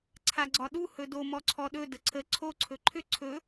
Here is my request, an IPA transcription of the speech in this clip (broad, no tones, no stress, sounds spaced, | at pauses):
ǀʰ a ɡ͡ǀ ɒ ɗ u h ɵ d o m ɔ ǀʰ ɔ ɗ ɵ d ə ǀʰ ə ǀʰ o ǀʰ ɵ ǃʰ ʏ ǀʰ ɵ